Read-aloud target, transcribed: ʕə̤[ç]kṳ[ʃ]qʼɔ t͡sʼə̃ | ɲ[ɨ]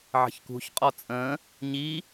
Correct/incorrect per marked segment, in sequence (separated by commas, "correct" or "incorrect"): correct, incorrect, incorrect